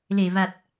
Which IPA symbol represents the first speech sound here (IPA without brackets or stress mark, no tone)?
l